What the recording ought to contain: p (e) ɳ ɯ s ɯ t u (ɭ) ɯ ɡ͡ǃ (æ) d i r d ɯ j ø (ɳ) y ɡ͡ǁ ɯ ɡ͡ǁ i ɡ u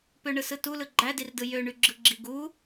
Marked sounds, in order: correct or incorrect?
incorrect, incorrect, correct, correct

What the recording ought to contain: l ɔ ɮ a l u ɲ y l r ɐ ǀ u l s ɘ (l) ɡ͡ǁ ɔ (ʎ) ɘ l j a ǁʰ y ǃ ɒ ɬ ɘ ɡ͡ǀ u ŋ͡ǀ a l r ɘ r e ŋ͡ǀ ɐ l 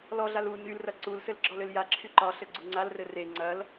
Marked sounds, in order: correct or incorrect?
correct, incorrect

